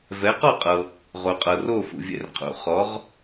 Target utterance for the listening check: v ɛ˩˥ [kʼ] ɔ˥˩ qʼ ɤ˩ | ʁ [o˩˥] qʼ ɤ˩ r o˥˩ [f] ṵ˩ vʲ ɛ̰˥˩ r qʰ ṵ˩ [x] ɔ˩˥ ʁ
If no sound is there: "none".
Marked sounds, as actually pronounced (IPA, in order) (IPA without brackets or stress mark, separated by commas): q, o˩, f, χ